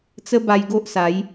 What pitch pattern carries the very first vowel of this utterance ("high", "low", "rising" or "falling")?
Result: high